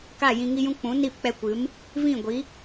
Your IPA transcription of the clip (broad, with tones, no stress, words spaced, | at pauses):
ka˦˨jĩ˧ŋi˦jũ˦ k͡pũ˨˦niː˦˨pk͡pɛ˧kʷɨ˨˦m | vĩ˦˨ɡʷi˨˦